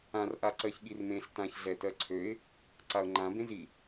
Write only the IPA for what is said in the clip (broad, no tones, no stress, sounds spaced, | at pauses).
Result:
ã r ʔ a ǀ ɜ ç ɠ i r m ẽ ɬ t ã ç ɮ ɛ t ɜ ǀʰ ø ɪ̯ | ǀ a ʊ̯ ŋ͡ǃ ã b ẽ z i